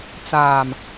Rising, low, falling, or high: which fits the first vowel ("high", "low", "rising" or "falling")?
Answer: low